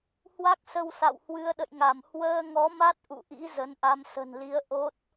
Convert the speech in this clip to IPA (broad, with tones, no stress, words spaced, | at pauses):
hwa˦˥k̚sə˧wsa̰˧˨w hwɨ˨˦ə̯ɗə̰˧˨jŋa˧˩m hwəː˧ŋɔ˨˦ma˦˥t̚ ʔṵ˧˨ʔḭ˧˥ zə˨˦nʔa˧m sə̤˨˩nli˨˦ə̯ ʔo˦˥t̚